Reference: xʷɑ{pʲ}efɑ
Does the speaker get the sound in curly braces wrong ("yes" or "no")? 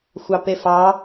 yes